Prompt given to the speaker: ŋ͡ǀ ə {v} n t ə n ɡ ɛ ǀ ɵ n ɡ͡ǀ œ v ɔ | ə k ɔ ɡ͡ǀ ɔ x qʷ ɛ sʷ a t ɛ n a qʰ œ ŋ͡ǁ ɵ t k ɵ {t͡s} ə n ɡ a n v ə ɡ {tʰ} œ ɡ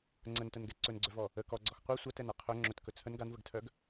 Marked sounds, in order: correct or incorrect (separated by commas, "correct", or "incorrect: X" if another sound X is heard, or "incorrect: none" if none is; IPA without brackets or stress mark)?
incorrect: none, incorrect: t͡sʰ, correct